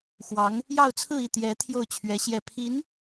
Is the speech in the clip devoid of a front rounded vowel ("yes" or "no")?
yes